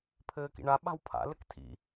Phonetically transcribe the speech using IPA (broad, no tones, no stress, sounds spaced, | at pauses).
pʰ ɘː k ḭ ɳ a ɓ a̤ w pʰ a̰ l ɘ k tʰ ḭ